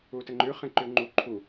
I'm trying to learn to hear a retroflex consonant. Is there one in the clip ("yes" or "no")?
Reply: no